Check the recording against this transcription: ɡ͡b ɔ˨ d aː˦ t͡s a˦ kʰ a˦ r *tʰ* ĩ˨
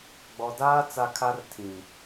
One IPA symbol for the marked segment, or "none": tʰ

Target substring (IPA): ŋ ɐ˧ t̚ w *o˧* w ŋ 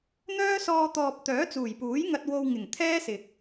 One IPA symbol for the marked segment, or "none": o˧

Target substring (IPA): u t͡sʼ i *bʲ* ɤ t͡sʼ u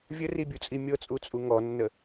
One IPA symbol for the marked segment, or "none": mʲ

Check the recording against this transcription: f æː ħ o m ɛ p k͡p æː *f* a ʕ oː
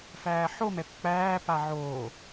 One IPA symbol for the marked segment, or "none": p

